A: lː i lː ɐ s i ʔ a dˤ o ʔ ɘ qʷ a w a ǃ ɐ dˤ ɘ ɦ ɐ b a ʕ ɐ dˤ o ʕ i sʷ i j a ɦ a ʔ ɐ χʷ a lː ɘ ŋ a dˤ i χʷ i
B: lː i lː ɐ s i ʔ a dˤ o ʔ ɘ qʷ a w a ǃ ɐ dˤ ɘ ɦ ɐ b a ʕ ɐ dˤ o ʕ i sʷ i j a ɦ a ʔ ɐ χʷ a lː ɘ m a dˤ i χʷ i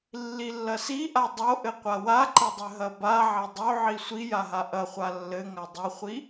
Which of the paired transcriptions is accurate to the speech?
A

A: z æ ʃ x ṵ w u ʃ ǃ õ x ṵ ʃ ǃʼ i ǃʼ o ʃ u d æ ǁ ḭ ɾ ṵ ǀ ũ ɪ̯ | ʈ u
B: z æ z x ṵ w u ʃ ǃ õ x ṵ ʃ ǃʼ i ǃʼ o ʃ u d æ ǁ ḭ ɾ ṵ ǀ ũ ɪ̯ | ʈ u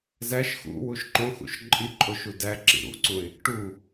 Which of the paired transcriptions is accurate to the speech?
A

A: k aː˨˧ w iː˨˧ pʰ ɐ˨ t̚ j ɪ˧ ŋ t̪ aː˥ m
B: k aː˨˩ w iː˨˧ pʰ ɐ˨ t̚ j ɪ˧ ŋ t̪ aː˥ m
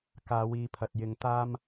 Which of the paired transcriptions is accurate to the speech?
A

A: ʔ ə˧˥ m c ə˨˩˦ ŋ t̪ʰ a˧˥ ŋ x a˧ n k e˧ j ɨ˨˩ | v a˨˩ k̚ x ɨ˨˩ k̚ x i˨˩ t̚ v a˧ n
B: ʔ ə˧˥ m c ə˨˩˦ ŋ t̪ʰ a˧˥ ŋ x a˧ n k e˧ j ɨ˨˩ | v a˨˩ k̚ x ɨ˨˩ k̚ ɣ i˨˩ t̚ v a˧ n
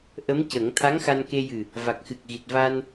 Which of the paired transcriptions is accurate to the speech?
B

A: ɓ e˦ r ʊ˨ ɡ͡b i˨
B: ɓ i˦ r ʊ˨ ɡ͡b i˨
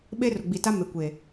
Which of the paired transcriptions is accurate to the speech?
A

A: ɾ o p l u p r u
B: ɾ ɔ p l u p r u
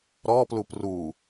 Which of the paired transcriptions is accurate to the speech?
B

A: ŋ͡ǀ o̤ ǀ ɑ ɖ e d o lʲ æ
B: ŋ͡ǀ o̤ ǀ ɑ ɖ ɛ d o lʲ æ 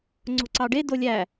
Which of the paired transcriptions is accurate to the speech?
A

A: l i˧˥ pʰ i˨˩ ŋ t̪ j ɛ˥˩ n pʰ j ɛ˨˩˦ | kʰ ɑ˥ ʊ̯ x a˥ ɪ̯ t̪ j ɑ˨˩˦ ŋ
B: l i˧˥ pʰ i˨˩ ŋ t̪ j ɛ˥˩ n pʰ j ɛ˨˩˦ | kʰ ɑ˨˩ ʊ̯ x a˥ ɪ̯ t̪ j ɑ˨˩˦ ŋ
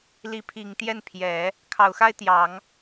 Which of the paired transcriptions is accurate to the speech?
B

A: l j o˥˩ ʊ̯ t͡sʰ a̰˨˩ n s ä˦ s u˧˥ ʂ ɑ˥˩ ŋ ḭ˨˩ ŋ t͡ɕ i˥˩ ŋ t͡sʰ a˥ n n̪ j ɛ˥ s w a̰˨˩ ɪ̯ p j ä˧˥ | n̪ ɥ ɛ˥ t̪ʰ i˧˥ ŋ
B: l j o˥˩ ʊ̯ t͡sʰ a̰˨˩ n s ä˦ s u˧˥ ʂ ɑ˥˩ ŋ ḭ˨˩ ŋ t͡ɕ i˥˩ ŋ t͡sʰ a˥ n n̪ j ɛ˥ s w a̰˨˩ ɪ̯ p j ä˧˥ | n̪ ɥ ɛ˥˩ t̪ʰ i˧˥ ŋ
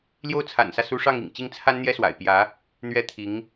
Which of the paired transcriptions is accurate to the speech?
A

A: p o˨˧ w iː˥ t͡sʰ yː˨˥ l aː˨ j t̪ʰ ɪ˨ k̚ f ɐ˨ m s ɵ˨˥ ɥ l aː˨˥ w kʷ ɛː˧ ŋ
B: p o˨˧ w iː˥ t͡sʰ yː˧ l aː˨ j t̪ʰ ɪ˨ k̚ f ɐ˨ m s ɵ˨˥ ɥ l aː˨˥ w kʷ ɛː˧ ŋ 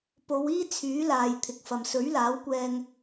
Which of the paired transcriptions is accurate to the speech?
A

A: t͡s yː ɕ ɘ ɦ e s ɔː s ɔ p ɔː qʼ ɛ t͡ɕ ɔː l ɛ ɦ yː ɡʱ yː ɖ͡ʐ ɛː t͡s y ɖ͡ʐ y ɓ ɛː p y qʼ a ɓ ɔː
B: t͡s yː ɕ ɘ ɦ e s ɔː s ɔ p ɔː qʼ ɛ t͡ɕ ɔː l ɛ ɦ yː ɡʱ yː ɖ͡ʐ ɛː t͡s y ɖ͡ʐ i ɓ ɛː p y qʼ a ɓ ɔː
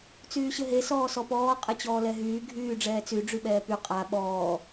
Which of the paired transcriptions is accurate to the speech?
A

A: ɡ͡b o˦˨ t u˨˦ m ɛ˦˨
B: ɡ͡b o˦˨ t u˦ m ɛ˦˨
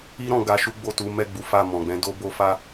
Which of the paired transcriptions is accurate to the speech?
A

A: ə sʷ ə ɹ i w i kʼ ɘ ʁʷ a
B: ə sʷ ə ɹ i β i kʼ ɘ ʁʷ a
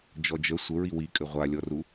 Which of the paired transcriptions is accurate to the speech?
A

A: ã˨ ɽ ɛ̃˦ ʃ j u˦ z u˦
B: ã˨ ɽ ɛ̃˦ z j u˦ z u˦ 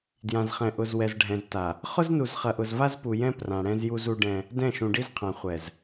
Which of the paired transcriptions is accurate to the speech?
B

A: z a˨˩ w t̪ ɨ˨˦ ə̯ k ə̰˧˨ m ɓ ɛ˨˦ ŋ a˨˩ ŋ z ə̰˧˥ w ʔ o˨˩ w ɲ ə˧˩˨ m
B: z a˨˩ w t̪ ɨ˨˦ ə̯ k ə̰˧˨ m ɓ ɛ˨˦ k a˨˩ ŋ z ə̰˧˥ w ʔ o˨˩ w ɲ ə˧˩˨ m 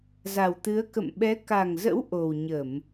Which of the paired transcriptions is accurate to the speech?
B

